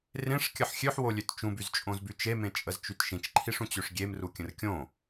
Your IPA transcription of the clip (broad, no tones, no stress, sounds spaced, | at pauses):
r ẽ ʂ kʲ ə ħ xʲ ø ħ w o lʲ ø t t͡ʃ ũ b y z t͡ʃʼ õ z b y t͡ʃ e m ẽ t͡ʃʼ ə z t͡ʃ y t ʃ ĩ t͡ʃ ǃʰ i ʂ ũ t͡ɕ ø ʂ ɡʲ e m r u kʲ ə̃ r kʲ õ